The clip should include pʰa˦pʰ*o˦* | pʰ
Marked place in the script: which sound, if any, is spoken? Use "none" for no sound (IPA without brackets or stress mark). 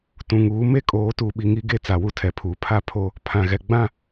o˦